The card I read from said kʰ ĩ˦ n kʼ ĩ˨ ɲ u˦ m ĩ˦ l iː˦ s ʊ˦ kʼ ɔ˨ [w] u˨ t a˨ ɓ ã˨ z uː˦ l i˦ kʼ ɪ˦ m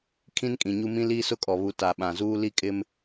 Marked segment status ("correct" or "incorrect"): incorrect